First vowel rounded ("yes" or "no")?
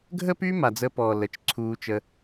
no